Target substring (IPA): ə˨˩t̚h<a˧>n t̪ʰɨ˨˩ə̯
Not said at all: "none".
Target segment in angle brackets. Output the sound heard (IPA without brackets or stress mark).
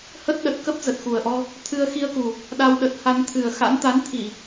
a˧